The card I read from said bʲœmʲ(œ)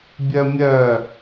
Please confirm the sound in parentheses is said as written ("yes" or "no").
yes